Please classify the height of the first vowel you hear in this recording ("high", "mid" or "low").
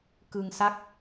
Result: high